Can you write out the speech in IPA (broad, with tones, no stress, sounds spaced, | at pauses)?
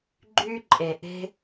ɡ͡ǃ y˦ ǃʼ e˨ ʔ e̤˦